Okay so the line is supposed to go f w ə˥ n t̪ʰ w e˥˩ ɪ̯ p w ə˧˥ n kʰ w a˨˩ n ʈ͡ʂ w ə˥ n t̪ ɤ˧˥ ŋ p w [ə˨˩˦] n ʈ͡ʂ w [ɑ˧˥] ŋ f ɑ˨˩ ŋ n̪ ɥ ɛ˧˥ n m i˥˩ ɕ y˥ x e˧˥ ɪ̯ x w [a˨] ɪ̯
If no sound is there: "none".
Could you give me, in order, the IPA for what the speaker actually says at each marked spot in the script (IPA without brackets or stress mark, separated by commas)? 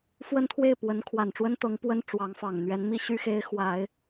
ə˥, ɑ˧˥, a˨˩˦